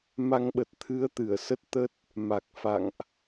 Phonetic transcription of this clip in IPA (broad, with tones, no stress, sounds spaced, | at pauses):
m a˧ ŋ ɓ ə˨˩ t̚ t̪ʰ ɨ˨˦ ə̯ t̪ ɨ˧˩ ə̯ s ə˦˥ t̚ t̪ ə˦˥ t̚ | m a˨˩ k̚ f a̰˧˨ ŋ ʔ